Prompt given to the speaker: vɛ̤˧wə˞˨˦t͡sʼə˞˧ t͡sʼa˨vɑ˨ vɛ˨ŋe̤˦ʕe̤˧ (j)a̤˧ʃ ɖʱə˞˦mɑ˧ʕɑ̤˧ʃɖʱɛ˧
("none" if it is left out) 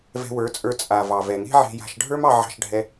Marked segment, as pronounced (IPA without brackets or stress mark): j